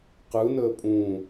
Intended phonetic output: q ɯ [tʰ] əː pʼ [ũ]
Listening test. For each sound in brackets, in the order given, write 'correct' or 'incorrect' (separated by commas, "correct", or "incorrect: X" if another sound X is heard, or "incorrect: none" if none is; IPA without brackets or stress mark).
incorrect: n, correct